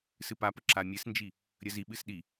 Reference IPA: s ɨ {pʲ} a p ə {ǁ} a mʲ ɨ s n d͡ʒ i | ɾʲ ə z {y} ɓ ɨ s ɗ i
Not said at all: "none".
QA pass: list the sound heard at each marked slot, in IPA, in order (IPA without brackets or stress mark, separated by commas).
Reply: p, ǁ, i